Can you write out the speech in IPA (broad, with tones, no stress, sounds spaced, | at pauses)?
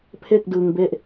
pʰ e˥˩ k̚ d ɯ˧ ŋ b e˥˩ ʔ